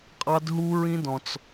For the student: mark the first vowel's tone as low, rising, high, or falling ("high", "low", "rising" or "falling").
high